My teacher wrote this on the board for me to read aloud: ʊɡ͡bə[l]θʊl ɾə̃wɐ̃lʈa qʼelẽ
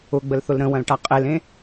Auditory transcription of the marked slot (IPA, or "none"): l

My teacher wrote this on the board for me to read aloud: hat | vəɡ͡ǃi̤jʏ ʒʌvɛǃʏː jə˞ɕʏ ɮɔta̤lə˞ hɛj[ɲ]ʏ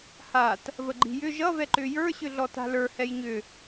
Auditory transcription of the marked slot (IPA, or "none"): ɲ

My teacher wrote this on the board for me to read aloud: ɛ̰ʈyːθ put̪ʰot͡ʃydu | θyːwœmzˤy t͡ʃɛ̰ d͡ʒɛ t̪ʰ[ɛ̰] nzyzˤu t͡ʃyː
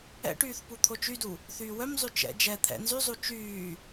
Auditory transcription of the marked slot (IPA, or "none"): ɛ̰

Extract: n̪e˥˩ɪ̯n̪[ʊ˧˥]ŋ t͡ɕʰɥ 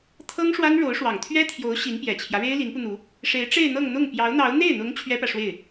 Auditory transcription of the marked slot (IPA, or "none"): ʊ˧˥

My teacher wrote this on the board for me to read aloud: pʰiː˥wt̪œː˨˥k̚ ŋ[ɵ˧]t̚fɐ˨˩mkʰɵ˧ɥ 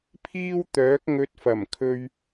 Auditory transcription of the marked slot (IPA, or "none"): ɵ˧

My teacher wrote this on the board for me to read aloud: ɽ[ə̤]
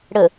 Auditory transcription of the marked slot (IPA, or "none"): ə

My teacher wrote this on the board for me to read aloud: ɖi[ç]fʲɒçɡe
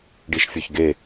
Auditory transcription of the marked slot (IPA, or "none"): ʃ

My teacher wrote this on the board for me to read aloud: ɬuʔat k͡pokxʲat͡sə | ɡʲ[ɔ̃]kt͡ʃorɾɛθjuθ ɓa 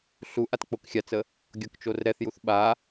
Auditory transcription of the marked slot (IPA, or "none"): ɔ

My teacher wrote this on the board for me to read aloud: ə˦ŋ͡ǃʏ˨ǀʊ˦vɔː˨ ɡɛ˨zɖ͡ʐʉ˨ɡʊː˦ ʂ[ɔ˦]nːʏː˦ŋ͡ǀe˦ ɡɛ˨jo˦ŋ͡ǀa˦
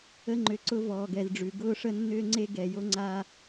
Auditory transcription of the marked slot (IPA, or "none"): ə˦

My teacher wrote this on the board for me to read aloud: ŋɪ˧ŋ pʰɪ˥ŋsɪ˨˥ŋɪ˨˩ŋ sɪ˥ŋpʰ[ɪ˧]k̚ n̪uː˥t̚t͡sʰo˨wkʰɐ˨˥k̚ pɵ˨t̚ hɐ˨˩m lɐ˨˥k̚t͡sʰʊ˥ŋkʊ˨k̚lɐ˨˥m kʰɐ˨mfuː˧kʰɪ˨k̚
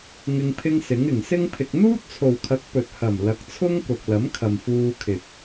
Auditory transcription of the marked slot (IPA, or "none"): ɪ˧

